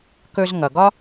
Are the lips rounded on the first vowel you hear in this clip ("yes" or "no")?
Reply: yes